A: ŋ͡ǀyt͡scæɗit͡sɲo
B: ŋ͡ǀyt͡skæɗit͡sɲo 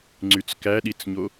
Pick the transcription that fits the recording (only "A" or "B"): B